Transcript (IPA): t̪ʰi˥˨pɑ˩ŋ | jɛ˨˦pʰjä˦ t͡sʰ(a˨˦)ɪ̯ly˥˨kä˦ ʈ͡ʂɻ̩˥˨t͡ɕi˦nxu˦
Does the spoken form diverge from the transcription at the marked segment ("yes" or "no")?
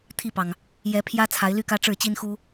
no